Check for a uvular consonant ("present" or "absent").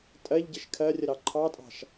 absent